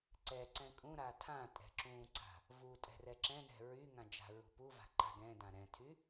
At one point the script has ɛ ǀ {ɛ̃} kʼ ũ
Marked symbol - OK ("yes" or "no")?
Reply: yes